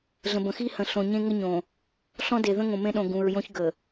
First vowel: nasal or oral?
nasal